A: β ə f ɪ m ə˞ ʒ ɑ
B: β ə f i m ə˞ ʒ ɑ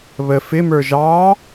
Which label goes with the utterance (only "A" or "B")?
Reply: A